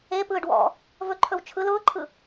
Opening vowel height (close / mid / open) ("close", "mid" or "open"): mid